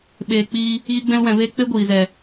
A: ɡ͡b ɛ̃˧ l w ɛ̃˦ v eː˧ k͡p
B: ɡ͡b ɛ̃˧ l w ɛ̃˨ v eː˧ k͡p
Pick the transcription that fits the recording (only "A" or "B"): B